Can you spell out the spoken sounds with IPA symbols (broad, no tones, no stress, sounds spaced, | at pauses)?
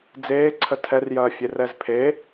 d͡z eː ǀʰ ə tʰ ɛ r j ɐː fʲ e r ɛ z pʰ e